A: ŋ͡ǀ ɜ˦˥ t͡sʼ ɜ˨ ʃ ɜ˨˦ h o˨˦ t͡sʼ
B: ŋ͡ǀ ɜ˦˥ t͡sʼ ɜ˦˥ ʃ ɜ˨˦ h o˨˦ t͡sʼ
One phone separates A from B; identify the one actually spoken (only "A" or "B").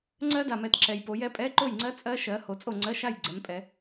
B